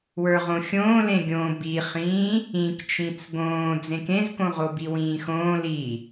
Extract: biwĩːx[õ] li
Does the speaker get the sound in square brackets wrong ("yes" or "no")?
yes